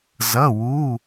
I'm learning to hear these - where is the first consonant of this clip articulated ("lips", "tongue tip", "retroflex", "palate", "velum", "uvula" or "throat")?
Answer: tongue tip